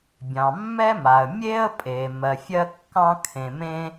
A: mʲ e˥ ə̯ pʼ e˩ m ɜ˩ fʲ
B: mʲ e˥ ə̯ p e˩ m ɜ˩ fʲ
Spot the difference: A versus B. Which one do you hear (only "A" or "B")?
A